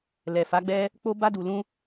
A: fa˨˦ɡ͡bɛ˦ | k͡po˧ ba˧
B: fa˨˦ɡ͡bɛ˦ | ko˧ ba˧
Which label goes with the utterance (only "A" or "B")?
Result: A